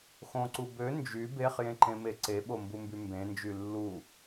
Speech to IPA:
x õ ǀ u b ø n d͡ʒ y b e χ j ẽ ǃ ẽ m e ǀ e ɓ o m b u m b y m b ẽ n d͡ʒ y lː u

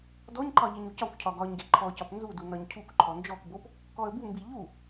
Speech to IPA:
d ɔ ɲ ǃ ɒ ʎ i ɲ u c ɒ kʷ cʰ ɒ ɡ ɒ ɲ ɡ e ǃʰ ɔ c ɒ p n z u d u n ɒ ɲ cʰ u k ǃʰ ɔ n d͡ʒ ɔ k b o p | k ɔ ə̯ b u m b i ʎ u

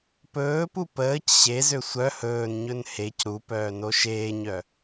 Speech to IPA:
p ɵː p u p əː c ɕ e z ø sʷ œ h ɵː n ɲ ɵ n h e c ɾ u p œː n o ʃ eː ɲ œ

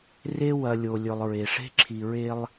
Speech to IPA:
r e˦ w ɐ˨ lʲ o˨ lʲ ɵ˨ lˠ ɹ e˨ ʂ e̤˦ ǁʰ i˨ ɹ e˦ lˠ

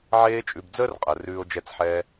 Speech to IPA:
ʕ eː˧ t͡ʃʼ ʉ˨ b d͡z əː˦ r qʼ ɜ˨ r ʉː˧ o̯ d͡ʒ ɛ˧ t͡s ħ ɛː˧

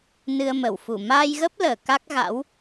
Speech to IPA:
n ɨ˧ ə̯ m ə˧˩ w f u˧˩ m aː˧ j ɣ ə˦˥ p̚ l əː˧˩ k a˦˥ k̚ ɣ a̰˧˥ w

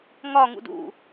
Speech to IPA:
ŋ ɒ ŋ ṵ d ṵ

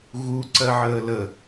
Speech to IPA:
ɣ u ǀ ɜ ʕ əː l ə

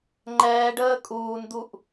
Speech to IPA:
ŋ͡ǃ ɛː ɖ əː kʼ uː n d̪ u ʔ

